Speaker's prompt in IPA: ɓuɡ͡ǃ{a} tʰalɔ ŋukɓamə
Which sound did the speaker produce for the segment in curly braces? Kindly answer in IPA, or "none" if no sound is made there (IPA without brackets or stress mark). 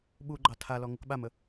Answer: ɑ